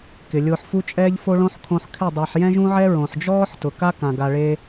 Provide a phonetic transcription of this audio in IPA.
kɪ˨lʲʊː˧ħfu˦t͡ʃʼɛː˦ʎ fo˦ɭõ˦ħ kʰõ˧ħkʰɪ˦˨ dˤa˧ħ jɛ̃˦ʒũ˦ʕɛ˦ ɹõ˨ħd͡ʒɔː˦ħ tʊ˨ka˦kã˨ ɡa˧ɭe˦

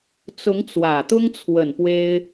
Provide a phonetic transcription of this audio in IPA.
t͡sʊ˧˥ŋt͡swä˨˩t̪ʊ˥ŋt͡sʰwə˨˩n pwe˥ɪ̯

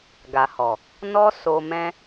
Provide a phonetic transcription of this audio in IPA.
ɡa˨hɔ˨ | nɔ˦ so˧mɛ̃˦

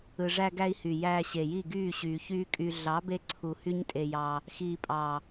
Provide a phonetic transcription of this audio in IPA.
ɯ˨ʐæ˧ɡæ˧i̯ hy˨jæː˧ɕe˨ji˦˨ ɡyː˦˨ɕyː˨çyː˦kʼy˧ ɮɑ˨˦be˧ǀʰu˨ hy˦ɲtʼe˧jɑ˧ | xiː˨pʼɑ˨

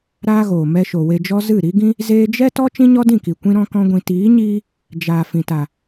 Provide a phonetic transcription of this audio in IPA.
ɾaː˦ɣoː˨ mɛ˧ʃo˨ we˧d͡ʒɔ˦ zɨ˦˨ɾi˦ɡĩ˦ | zeː˧d͡ʒɛ˦ tɔ˦ t͡ʃĩ˦ɲɔ˦dĩ˦˨ki˨ kʷĩ˦ɾɔ̃˦kɔ̃˦ɡʷĩ˧ tiː˨˦ɲiː˧ | d͡ʒaː˨ fĩ˨ta˨

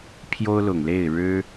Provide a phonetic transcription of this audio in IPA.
pʰjo˥ʊ̯lʊ˨˩ŋle˥˩ɪ̯ ɻɻ̩˥

